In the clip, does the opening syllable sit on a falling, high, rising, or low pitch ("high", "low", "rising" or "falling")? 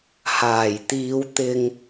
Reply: low